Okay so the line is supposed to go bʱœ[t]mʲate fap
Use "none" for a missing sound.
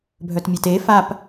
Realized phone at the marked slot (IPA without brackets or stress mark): t